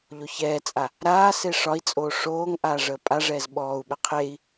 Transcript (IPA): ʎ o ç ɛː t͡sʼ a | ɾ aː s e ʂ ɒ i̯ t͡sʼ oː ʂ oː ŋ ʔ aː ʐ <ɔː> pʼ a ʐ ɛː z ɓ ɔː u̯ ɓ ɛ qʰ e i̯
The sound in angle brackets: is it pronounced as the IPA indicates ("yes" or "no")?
no